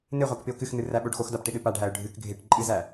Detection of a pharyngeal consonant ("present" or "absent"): absent